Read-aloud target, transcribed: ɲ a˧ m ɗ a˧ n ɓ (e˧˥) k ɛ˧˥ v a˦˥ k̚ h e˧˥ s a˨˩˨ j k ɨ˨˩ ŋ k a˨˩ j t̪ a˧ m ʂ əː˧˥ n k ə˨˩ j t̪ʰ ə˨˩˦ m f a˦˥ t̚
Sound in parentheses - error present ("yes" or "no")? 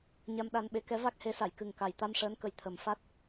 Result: no